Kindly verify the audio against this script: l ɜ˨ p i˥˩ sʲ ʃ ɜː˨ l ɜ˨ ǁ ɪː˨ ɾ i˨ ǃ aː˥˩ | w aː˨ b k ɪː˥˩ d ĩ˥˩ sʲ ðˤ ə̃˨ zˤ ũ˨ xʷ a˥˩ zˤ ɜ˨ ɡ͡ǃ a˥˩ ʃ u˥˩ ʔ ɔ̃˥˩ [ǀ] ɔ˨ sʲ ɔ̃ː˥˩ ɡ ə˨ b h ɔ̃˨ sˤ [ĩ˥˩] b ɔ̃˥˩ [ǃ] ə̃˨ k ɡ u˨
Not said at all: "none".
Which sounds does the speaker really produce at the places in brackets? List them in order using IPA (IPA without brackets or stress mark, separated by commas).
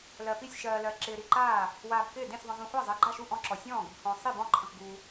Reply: ǁ, i˥˩, ǃʰ